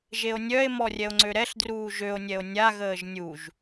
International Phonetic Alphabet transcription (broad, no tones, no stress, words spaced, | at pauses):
ʒeo̯nʲœe̯ mɔrʲɛo̯ŋ͡ǀøɾɛɬ druːʒøo̯nʲɛo̯ nʲaɣəːʒ nʲuʒ